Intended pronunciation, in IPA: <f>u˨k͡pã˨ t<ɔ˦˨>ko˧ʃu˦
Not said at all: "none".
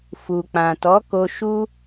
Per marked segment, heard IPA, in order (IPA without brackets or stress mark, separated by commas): f, ɔ˨˦